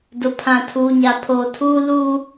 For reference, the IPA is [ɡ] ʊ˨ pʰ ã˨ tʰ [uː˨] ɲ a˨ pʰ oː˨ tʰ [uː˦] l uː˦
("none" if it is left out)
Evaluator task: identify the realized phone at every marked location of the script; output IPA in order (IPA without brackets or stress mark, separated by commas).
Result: d, uː˨, uː˦